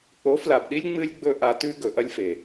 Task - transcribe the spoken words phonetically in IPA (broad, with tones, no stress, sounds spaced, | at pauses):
k͡p o˨˦ f l a˨ b ɗ i˦ lʲ ŋ͡m ɨ˦ lʲ ɡ͡b ɵ˦ ʔ a˧ t ʉ˦ ɡ ɵ˨ ʔ ɐ˦ lʲ f e˨